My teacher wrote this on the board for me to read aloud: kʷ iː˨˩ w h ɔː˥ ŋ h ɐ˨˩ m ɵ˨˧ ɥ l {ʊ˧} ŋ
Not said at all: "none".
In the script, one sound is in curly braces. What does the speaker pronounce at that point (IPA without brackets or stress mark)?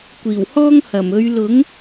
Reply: ʊ˨˥